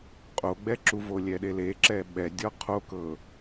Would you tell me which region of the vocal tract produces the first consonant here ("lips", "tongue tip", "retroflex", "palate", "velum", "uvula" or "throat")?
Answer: uvula